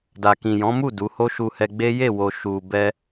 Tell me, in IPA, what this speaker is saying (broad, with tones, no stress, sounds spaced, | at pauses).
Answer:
d a˨ k ĩ˨ j ɔ̃˨˦ m u˦˨ d u˨˦ h o˦ ʃ u˧ h ɛ˧ ɡ͡b e˦ j e˦˨ w o˨ ʃ u˨ b ɛ˧